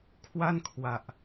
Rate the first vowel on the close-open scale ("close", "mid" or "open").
open